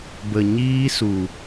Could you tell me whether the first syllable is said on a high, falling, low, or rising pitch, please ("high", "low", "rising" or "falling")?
low